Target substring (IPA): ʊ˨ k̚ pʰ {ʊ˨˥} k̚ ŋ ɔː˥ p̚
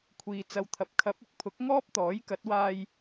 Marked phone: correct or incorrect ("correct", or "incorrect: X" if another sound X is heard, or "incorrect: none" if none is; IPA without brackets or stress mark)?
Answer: correct